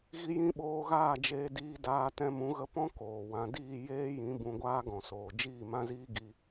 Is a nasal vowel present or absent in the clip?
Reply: present